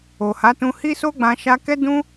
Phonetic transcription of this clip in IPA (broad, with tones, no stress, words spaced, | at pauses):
o˨ha˨˦tũ˧ hi˦so˦ɡ͡bã˧ ʃa˧kɛ˦ dũ˦